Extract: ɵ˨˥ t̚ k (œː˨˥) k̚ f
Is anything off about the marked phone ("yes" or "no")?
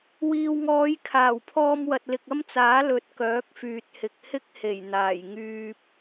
no